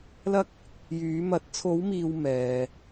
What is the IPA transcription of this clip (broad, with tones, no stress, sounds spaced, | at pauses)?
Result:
l ɐ˥ k̚ | j yː˨˧ m ɐ˨˥ t̚ t͡sʰ o˨˧ w m iː˨ w m ɛː˨